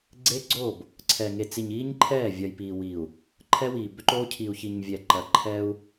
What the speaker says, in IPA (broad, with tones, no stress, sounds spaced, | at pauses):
ɡ͡ǀ eː˦ ɡ͡ǀ oː˦˨ b | ǀʰ ɛ˨ ŋ e˨ t͡s i˨ ɲ iː˦ ɲ ǃʰ ɛː˦˨ vʲ ɐ˨ j p iː˨ w i˨ u̯ | ǃʰ ɛ˦ w iː˨ b ʏ˦ ǃ oː˦ cʰ i˨ u̯ ç i˨ ɲ vʲ ɛ˨ ǃ ɐ˨ ǃʰ ɛ˦ u̯